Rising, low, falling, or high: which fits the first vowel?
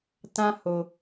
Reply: high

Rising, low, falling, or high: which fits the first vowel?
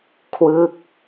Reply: falling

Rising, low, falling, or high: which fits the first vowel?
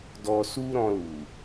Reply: low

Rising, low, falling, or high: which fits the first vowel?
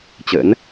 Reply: rising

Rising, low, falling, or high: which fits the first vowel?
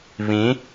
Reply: rising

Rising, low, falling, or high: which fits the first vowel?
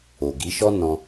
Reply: low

